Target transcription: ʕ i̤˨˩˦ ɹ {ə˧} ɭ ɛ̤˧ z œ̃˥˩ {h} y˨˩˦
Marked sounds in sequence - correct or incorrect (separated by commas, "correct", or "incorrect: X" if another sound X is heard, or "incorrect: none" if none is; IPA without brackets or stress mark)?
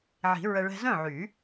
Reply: correct, incorrect: ʕ